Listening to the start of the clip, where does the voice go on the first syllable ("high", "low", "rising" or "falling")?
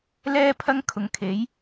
high